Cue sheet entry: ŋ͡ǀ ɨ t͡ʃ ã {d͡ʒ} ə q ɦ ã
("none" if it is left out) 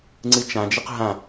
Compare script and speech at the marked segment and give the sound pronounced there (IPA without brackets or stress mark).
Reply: d͡ʒ